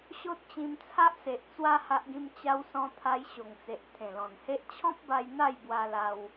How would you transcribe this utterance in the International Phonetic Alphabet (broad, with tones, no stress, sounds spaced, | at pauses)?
ɕ o˦ t̚ t͡ɕ ĩ˧ m t͡sʰ a˦ ʔ s e˨ ʔ t͡s w a˦ h a˦ ʔ ɡ ĩ˦ m t͡ɕ a˧ w s ɔ̃˧ t̪ʰ a˧ j ɕ o˨˩ ŋ t͡s e˨ ʔ t̪ʰ ẽ˨˩ l ɔ̃˨˩ n h e˦ ʔ t͡ɕʰ ɔ̃˦ p̚ b a˧ j n̪ a˥˧ j b w a˧ l a˧ w